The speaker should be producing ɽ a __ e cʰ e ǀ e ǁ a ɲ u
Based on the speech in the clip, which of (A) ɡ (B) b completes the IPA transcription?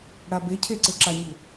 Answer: B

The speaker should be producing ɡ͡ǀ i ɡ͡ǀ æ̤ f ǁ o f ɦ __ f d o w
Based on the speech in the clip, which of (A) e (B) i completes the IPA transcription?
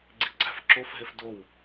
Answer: A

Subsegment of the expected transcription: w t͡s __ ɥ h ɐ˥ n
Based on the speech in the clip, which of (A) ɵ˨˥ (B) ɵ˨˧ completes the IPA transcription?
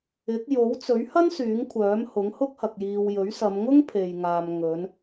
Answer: A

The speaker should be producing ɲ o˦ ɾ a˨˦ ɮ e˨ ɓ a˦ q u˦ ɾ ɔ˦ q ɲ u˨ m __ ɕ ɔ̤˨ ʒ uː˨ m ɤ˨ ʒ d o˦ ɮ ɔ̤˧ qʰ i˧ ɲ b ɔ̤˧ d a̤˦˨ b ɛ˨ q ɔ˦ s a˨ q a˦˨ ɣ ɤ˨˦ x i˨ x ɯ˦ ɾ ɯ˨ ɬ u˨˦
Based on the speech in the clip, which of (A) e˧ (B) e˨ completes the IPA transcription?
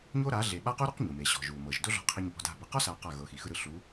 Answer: B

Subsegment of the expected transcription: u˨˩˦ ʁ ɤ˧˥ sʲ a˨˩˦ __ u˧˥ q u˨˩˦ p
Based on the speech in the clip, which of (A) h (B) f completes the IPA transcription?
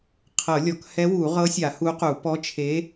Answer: A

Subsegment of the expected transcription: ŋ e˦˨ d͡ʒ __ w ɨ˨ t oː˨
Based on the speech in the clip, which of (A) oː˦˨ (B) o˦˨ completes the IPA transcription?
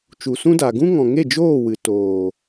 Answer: A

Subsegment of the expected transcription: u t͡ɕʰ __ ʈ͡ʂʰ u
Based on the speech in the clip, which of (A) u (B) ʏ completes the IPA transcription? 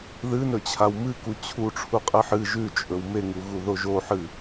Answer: A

